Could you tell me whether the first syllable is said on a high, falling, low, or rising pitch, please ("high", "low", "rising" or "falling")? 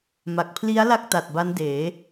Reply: low